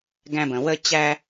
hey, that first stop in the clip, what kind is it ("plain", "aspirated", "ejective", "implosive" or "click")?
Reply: plain